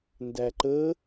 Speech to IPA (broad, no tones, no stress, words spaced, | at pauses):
ndæǃə